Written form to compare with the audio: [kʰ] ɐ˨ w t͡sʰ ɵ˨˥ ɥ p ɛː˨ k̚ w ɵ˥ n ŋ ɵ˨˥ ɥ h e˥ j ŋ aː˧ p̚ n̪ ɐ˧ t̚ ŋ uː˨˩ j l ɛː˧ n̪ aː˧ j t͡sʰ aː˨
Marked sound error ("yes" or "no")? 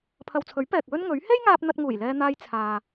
yes